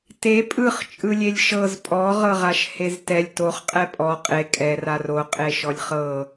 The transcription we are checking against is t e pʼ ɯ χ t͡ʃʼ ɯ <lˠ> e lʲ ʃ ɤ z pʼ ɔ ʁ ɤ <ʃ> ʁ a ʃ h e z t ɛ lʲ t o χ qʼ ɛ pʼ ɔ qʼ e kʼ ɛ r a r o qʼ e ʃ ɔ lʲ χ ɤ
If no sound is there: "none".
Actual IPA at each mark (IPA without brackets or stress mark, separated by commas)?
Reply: lʲ, none